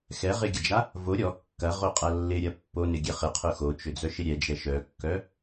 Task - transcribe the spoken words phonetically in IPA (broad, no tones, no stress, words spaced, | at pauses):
xɛʁɪɡʲɐd͡ʒa | vo ɾʲɔ kːɐʁoqʼɐ lːɪɾʲɐ pːonɪɡʲɛ χɪqʰʊ xot͡ʃʏd͡zœʃɪ ɾʲɛd͡ʒɛ ʃœkːœ